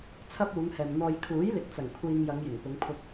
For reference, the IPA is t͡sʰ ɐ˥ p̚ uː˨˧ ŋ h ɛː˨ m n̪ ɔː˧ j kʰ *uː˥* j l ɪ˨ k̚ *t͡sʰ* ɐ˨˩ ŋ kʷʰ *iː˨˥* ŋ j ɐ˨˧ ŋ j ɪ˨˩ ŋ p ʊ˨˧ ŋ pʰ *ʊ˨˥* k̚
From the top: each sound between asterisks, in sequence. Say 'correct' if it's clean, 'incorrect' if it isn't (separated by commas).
incorrect, incorrect, incorrect, incorrect